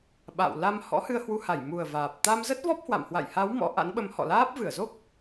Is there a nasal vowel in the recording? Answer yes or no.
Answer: no